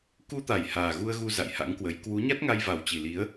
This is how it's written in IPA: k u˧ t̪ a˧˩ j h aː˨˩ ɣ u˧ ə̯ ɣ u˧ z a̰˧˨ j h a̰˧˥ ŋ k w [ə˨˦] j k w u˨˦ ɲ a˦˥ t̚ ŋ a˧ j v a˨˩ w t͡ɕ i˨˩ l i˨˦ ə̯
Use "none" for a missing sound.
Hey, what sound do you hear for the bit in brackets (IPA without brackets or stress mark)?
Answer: ə˨˦